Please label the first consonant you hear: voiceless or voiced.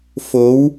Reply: voiceless